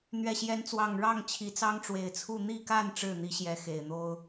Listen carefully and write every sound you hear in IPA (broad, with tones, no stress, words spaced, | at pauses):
n̪ɥɛ˨˩ɕjɛ˨˦nt͡swɑ˨˩ŋ ɻɑ˥˨ŋt͡ɕʰi˨˩t͡sɑ˦ŋ ʈ͡ʂwe˨˩ɪ̯t͡sʰu˥˨ n̪i˥˨ka˥˨n ʈ͡ʂɻ̩˥˨n̪i˨˦ɕjɛ˨˦ xe˨˩ɪ̯n̪o˦ʊ̯